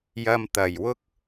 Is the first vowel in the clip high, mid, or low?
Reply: low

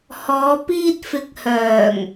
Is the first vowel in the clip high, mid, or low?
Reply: mid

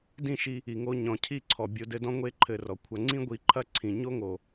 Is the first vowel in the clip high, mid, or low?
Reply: high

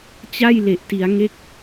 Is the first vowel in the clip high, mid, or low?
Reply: low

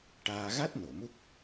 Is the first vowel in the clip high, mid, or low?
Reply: low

